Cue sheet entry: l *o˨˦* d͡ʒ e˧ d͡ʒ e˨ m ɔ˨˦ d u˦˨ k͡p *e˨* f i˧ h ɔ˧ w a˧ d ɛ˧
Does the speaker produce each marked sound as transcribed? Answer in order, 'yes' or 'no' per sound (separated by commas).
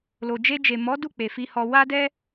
no, yes